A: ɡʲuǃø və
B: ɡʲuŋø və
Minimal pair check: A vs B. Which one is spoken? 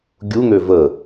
B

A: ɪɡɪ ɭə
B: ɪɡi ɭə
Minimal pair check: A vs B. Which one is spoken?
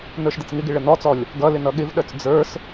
A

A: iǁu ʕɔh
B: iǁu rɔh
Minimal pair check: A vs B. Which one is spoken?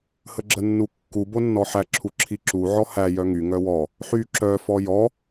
A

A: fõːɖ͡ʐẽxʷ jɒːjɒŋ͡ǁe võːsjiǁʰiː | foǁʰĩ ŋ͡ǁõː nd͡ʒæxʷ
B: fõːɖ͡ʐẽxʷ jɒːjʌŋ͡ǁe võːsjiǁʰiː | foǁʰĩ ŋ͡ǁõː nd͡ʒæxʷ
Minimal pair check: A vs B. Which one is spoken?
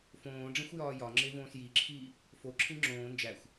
A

